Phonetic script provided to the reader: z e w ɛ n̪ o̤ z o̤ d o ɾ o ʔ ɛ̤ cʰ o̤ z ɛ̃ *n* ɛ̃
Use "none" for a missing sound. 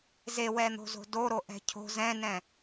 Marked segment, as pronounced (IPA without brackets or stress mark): n